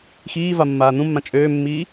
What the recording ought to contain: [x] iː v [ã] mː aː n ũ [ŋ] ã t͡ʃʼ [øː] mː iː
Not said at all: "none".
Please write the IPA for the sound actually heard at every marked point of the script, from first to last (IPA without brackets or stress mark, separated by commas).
x, a, mː, øː